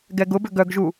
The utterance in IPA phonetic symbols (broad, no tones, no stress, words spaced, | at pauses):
ɡɛɡʊbʏ ɡœɡʒu